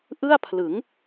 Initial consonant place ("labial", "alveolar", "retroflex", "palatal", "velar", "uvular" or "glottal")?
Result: glottal